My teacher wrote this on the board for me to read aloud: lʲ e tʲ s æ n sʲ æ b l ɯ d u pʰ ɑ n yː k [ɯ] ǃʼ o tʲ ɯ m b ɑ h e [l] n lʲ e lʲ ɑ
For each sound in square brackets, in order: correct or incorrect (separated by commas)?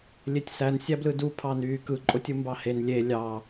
correct, incorrect